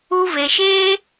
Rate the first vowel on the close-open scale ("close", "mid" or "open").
close